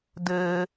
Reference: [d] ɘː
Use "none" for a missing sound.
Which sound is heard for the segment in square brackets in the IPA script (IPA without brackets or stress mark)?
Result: d